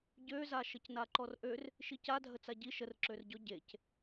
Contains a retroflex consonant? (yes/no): no